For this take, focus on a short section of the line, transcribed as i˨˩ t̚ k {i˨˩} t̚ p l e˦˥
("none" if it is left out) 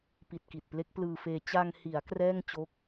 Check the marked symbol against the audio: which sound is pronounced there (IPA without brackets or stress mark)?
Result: i˨˩